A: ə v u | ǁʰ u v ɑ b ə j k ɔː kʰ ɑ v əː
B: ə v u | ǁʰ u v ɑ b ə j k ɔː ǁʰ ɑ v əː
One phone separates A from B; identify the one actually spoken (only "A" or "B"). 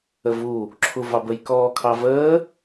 A